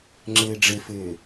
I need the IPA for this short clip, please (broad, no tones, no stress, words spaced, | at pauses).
ŋ͡ǁɘːɖ͡ʐɘfɘː